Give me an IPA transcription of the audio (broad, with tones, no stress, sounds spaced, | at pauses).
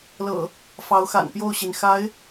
l ɤ̰˨˩ | f ɑ˨˦ ʊ̯ x a̰˨˩ n p j o˥˨ ʊ̯ ɕ i˩ n x a˨˦ ɪ̯